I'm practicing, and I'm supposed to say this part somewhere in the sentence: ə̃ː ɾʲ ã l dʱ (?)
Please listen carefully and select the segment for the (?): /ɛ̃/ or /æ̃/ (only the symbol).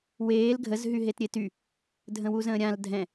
ɛ̃